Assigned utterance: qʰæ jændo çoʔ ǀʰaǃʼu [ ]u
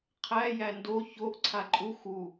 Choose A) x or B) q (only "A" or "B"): A